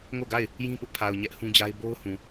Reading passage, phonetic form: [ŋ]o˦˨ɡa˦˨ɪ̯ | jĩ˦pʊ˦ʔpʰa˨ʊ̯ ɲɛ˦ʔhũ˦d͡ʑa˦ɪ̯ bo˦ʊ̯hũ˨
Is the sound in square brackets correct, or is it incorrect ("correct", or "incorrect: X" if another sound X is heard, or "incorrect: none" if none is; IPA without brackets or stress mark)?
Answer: correct